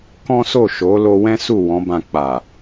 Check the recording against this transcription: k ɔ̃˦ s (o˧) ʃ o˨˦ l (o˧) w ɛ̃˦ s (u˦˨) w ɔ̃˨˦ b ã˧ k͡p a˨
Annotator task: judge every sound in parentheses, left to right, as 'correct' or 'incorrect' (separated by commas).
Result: incorrect, correct, correct